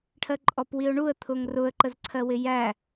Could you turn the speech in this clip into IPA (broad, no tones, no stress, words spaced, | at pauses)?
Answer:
ʈʰɜǃʼɔpwiʊ̯ɳuə̯ t̪ʰʊŋrʊə̯ ǃəzǀʰɜwɪjæ